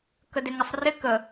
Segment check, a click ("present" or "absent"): absent